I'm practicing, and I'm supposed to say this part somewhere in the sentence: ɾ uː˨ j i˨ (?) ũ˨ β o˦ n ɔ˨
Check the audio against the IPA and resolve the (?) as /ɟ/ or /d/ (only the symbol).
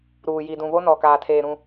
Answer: d